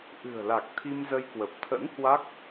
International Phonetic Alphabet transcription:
ʔɨ̤˨˩ə̯la˨˩k̚ t̪ʰi˧mzə˧jkwə˨˩p̚ t̪ʰə̰˧˥n hwa˦˥k̚

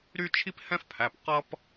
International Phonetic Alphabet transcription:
ɾy˥t͡ʃʰi˥p hɛ̃˥fpʰæ˩˧˩p qʌ˥p

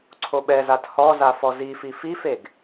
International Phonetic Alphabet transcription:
ǀʰoɓɛzat hɔza fɔzifi fifeɡ

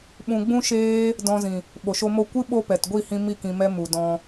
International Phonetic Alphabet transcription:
ɓũ˧ ɡ͡bũ˦ʃeː˦ | dɔ̃˧zĩ˨ | ɓo˨ʃo˧mo˦˨ kʷɨ˦ ɓo˦pɛ˨t ɡʷi˦˨hĩ˧ mi˦˨ kĩ˧mɛ˦mu˨ dɔ̃˧

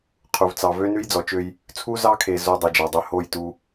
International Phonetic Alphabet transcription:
qʰu˨vt͡sɑ˨ vø˦nʉ˦jd͡zɔ˨t͡ʃø˦j | t͡sʰu˦zɑ˦kʰe˨ zo˦ dˤu˨d͡ʒɑ˨dˤø˦ ho˦˨jtu˦

